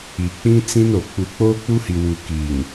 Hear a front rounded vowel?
no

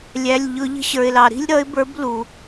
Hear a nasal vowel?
no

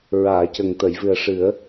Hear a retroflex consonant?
yes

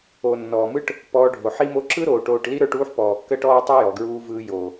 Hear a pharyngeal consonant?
yes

